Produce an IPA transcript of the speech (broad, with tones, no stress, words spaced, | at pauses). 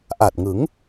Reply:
ʔa˨˩t̚ŋɯ˩˦ŋ